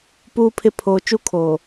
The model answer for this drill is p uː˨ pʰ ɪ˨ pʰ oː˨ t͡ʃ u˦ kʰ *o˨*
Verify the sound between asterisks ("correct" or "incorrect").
incorrect